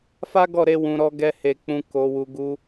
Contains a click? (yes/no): no